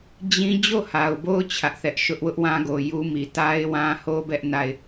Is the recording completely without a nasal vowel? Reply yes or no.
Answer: no